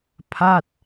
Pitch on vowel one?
falling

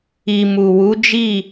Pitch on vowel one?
low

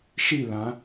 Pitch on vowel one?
falling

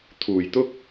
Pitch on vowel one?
low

